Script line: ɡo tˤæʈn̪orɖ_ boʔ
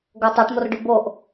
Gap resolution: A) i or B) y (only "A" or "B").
B